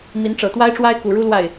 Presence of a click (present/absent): absent